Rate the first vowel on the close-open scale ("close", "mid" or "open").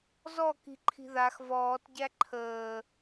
mid